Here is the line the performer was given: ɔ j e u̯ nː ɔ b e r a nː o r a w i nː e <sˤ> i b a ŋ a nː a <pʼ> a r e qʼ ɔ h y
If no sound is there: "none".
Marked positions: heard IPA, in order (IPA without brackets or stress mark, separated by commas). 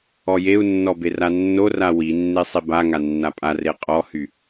sˤ, pʼ